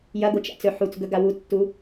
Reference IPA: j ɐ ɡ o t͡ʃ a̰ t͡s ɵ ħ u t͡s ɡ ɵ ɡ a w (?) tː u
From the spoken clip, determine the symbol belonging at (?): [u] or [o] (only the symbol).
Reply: u